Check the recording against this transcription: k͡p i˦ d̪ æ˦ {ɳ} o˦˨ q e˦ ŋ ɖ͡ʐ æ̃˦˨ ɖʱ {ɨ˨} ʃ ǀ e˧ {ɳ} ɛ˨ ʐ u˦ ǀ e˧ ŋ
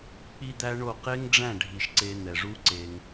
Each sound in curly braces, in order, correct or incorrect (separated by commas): correct, incorrect, incorrect